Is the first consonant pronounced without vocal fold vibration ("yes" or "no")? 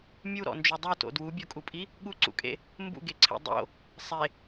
no